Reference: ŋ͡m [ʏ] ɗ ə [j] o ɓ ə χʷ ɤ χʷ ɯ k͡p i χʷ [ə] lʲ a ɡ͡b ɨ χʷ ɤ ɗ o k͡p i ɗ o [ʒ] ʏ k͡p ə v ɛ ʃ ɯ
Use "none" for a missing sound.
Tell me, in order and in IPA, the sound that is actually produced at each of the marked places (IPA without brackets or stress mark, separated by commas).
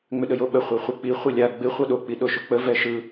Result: ʏ, j, ɯ, ʃ